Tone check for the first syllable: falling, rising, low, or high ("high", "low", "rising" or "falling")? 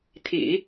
low